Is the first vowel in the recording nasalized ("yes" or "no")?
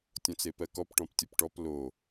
yes